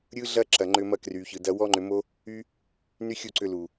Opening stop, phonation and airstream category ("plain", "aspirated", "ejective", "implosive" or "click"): click